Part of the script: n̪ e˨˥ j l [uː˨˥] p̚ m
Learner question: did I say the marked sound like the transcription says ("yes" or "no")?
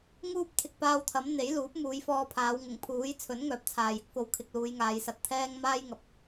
yes